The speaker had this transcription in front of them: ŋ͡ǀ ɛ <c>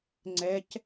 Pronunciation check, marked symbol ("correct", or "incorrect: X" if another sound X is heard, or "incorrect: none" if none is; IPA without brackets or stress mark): correct